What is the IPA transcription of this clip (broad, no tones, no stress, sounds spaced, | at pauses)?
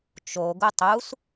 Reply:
t͡ʃ o ɡ u tˤ u s